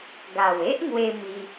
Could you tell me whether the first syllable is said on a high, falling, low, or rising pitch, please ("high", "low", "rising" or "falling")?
low